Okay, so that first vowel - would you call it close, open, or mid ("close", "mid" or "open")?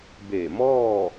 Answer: mid